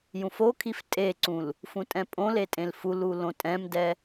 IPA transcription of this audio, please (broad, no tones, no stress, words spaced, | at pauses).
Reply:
jũfokʰif tʼeǀũl | fũtʼɛ̃pʼõle tʼẽlfulu lõtʼɛ̃mdɛ